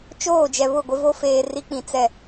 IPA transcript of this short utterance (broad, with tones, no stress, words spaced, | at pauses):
t͡ʃoː˦˨d͡ʒɛ˨βʊ˦˨ ɡʷɪ˦vo˦ feː˨ ri˦k͡pĩ˨t͡sɛ˦˨